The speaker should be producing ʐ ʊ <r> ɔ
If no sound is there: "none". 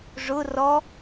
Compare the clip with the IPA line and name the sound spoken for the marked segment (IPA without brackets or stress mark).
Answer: r